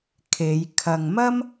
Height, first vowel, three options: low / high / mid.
mid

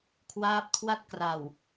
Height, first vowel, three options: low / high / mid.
low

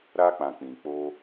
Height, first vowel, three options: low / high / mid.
low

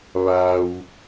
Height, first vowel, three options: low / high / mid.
low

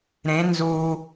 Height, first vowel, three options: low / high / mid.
mid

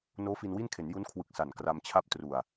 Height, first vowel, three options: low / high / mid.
mid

